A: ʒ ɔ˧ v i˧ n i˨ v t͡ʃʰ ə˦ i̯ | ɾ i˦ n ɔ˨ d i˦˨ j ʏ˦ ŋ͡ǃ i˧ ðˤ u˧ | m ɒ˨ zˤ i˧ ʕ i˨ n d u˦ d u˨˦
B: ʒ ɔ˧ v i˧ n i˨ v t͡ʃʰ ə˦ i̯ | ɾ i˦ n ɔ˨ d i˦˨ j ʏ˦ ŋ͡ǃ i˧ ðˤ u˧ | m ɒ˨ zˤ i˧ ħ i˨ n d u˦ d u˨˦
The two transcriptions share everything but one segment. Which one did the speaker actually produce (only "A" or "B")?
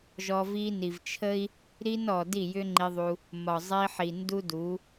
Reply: B